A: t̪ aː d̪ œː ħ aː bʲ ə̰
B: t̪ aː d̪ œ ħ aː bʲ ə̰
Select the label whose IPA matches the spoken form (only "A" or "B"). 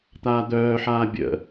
A